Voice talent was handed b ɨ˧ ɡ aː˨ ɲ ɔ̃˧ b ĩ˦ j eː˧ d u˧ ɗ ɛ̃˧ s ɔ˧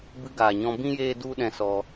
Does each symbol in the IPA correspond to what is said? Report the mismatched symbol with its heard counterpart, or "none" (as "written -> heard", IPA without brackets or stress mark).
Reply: none